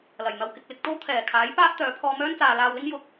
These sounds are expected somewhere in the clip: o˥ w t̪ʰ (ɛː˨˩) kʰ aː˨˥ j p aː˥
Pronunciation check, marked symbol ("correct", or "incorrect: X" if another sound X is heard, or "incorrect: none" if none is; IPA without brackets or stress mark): correct